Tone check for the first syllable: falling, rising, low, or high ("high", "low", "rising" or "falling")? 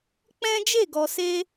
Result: high